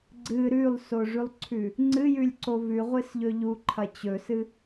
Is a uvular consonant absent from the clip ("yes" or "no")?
no